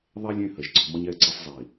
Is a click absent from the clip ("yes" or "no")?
no